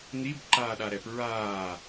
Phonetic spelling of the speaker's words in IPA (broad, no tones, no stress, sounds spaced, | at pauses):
n̪ i b ǃ aː ɗ a ɾ ɛ p ɹ aː